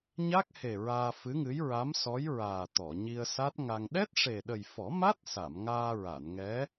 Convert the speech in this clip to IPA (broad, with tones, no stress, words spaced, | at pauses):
ɲa˦˥k̚he˨˩ ɹaː˧fɨ˧˥ŋɨ˧˥j ɹa˧˥msɔ˧˥jɹaː˨˩ t̪ɔ˨˩˨ɲi˧ə̯sa˦˥t̚ŋa˧ŋ ɗɛ˦˥t̚ʂe˨˩ɗə˨˩j fɔ˨˩˦ma˦˥t̚sa˨˩˨m ŋaː˧ɹa˨˩˨nŋɛ˧˥